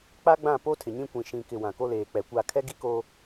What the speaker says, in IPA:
k͡pa˦ɡ͡bã˦˨ po˦tʰɪ˨ɲĩ˦ kʷĩ˨ʃĩ˨kɪ˨ wã˨ko˦leː˨ k͡pɛ˨kʷa˦˨ kʰɛ˦ɡi˦ko˦

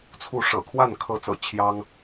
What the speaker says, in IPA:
t͡sʰu˥˩ ʂɤ̰˨˩kʰwa˥˩nkʰɤ˧˥t͡sɤ̰˨˩ t͡ɕʰjɑ˥ŋ

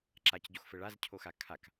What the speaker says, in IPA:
ǁacɟoxfɘ ɭazcʰoxa kʰak

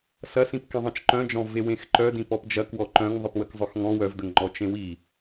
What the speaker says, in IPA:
sɐsĩp kẽðˤĩt͡ʃǃœ̃d͡ʒɔ̃ vewẽxǃœdĩ pɔpd͡ʒɐk wɔǃœ̃ŋ ðˤɨpwəkzˤœxŋɔ̃ wœvdəŋ ŋ͡ǃɔt͡ʃẽwi

